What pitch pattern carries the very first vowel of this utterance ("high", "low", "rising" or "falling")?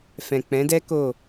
low